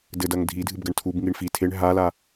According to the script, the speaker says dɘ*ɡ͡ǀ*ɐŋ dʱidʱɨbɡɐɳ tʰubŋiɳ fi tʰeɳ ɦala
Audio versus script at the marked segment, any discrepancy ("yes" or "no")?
yes